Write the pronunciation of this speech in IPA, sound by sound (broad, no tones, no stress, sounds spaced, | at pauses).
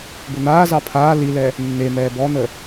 b ʊ n̪ aː z ɑ pʰ aː l i l ɛ | nː e m ɛː b ɔ n̪ ə